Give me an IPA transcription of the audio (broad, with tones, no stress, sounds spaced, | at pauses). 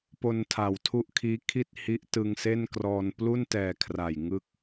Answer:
p o˧ n tʰ a˩˦ w tʰ u˦˥ ʔ kʰ iː˦˥ kʰ i˥˩ t̚ h i˦˥ ʔ t ɯ˧ ŋ s e˥˩ n k r ɔː˧ n p l u˥˩ n t ɛː˨˩ kʰ r a˨˩ j ŋ ɯ˥˩ k̚